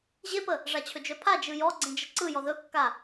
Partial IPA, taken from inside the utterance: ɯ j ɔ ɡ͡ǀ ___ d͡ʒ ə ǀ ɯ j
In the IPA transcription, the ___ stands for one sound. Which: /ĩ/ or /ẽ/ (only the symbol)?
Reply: ẽ